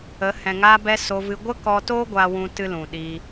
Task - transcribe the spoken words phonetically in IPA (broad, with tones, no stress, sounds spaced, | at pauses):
ə˨˦ h ɛ̃˨ ŋ aː˧ b ɛ˧ s o˧ v ɨ˧ ɡʷ ə˦ k ɔ˧ t o˦ ɡʷ a˦ w ũ˦ t ɨ˦ l ũ˨ ɗ i˧